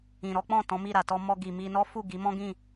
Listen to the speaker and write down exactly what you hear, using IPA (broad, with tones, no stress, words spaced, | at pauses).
ĩ˨ɾɔ˨˦k͡pɔ̃˦˨ tɔ̃˨˦mi˦˨ɾa˨ tɔ˧mɔ˧ ɡi˨mi˧nɔ˦ fu˦˨ɡi˨˦mɔ̃˦ɡĩ˦˨